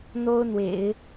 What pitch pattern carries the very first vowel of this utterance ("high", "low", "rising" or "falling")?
high